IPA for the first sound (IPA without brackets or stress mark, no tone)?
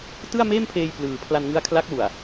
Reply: t